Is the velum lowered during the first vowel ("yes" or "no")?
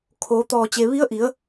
no